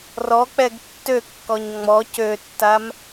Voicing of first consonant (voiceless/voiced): voiced